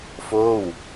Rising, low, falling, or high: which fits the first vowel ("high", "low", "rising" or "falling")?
falling